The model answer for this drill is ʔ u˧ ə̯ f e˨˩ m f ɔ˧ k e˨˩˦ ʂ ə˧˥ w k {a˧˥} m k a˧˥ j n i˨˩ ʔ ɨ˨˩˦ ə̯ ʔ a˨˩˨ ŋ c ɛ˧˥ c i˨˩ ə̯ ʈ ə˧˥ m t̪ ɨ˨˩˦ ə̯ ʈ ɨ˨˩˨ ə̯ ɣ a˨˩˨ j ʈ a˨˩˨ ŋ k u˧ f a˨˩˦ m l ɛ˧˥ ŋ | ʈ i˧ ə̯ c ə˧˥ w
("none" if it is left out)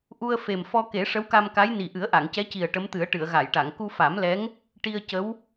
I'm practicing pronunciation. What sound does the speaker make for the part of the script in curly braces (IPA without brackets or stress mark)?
a˧